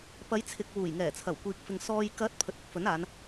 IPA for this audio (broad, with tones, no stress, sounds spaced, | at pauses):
p ɐ˨˧ j t͡sʰ ɪ˨ k̚ w uː˨˩ j ŋ ɛː˨˩ t͡sʰ ɐ˨˩ w kʷ iː˨ k̚ f ɪ˨ ŋ s ɔː˨ j k ɐ˨˥ t̚ pʰ ɵ˨ t̚ ɪ˨˥ k̚ f ɵ˨˥ n aː˨˧ n